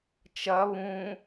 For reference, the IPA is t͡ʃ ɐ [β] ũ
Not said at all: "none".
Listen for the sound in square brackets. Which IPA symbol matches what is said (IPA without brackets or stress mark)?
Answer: β